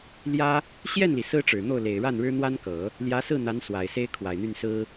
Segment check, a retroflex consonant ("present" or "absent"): present